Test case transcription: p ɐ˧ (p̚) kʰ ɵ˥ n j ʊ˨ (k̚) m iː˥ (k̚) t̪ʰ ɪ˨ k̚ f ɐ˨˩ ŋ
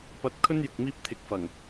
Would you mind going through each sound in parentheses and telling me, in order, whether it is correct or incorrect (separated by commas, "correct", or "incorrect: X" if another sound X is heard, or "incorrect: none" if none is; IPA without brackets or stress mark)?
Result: incorrect: t̚, correct, incorrect: p̚